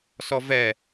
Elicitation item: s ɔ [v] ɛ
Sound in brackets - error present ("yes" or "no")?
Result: no